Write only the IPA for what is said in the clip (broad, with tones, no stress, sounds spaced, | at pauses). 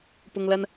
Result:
p ʊ˨ ŋ l ɐ˧ n